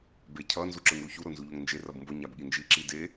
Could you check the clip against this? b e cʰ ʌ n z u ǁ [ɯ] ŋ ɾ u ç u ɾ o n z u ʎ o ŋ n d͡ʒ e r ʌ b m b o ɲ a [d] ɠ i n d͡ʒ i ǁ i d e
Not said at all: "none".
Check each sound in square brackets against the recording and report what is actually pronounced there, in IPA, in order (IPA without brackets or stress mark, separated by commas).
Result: ɯ, b